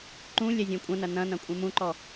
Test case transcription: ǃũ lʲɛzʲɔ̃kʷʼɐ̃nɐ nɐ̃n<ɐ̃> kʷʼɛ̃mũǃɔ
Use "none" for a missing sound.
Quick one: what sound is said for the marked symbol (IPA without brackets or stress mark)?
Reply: ɐ̃